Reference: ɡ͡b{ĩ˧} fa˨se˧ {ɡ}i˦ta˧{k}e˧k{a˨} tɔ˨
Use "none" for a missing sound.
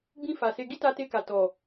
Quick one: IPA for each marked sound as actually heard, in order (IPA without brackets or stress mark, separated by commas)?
ĩ˧, ɡ, t, a˨